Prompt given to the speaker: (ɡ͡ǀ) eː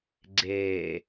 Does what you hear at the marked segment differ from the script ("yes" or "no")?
no